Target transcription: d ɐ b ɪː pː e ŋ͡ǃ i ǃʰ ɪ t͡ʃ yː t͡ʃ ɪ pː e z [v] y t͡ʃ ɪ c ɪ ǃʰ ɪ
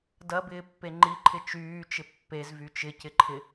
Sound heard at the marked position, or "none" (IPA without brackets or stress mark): v